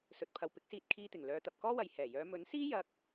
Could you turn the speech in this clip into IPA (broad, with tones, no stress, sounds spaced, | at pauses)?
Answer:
s ɵ˨ t̚ pʰ ɐ˨ w p ɪ˨˥ k̚ s iː˧ t̚ kʰ iː˧ t̪ ɪ˨˩ ŋ l œː˨˧ t̪ ɐ˨ p̚ k ɔː˥ w ɐ˨ j h ɛː˨˩ j œː˨˧ m ɵ˨˥ n s iː˥ j ɐ˧ k̚